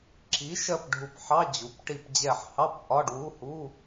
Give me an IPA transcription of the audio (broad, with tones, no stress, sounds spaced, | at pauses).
ǁ i˩˥ ʃ ɜ˧˩ p ɖʱ u˧˩ p ħ ɑ˧˥˧ d͡ʑ u˩˥ p ʈ i˧˩ p d͡ʑ ɛ˧˩ ħ h ɑ˧˥˧ p ʔ ɒ˧˥˧ ɖ w u˧˥˧ h u˧˥˧